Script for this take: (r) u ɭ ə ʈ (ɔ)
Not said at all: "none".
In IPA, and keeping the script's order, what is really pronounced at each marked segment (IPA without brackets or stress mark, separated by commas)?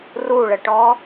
r, ɔ